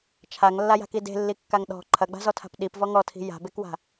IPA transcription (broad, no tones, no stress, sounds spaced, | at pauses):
t͡ʃʰ a ŋ lː a j a̤ k i d e̤ lː i kː a ŋ ɗ ɔ̤ ǃʰ ɐ ɡ͡b a̤ z ɔ tʰ a̤ p ɗ i p v ɔ ŋ ɔ tʰ i̤ j a̤ b e k w a̤